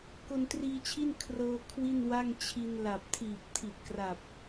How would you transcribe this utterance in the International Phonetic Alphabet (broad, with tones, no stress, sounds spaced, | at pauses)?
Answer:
k o˧ n t r iː˧ t͡ɕʰ i˥˩ n kʰ r ɤː˧ kʰ w i˥˩ n w a˥˩ ŋ t͡ɕʰ i˧ n l a˨˩ p̚ tʰ iː˨˩ p̚ tʰ i˨˩ t̚ k r a˨˩ p̚